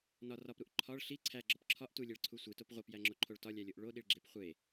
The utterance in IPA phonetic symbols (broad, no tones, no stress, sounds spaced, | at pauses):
n ɒ r ɒ p ɾ u ʔ ǃʰ ɒ ɭ ɬ i ǀʰ æ ɡ͡ǁ ɒ p ǁʰ ɒ ʔ t u lʲ e ɭ ǀʰ u sʷ i t o p ʁʷ e p j æ ŋ͡ǁ o ǃʰ o ɭ t ɒ lʲ æ lʲ o ʔ ɭ o ɗ i ɭ ɡ͡ǁ e p χʷ e